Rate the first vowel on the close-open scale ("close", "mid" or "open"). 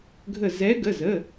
mid